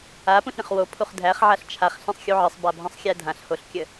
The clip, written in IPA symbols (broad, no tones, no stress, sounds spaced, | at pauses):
a p ũ ɬ ɾʲ ə̃ χ w o pʰ u χ dʱ æ χ ʕ a ɬ t͡ʃʰ a χ ɬ ɛ̃ sˤ xʲ u ʕ ə sˤ b a bʱ ə̃ sˤ xʲ æ dʱ ã ɬ h o ɬ kʲ ə